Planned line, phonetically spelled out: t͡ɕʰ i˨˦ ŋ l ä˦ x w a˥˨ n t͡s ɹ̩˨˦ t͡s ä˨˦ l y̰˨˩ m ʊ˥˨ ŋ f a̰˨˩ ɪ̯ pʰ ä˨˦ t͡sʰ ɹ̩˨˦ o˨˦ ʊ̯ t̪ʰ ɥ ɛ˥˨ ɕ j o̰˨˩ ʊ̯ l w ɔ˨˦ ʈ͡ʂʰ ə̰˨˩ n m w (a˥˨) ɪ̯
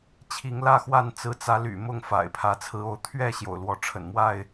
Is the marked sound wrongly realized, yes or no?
no